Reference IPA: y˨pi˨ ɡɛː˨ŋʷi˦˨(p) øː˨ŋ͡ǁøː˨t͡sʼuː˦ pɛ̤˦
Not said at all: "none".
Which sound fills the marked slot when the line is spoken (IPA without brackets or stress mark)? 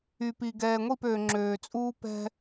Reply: p